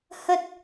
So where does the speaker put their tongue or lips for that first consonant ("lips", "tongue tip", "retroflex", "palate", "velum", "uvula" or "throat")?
throat